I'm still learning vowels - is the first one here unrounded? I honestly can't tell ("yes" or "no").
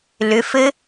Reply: no